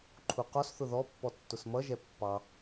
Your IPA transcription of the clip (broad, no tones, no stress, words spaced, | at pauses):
ǃʰuqɔsθʊ ðɔpːɔ tːʊsmʌʒɛ pːɑ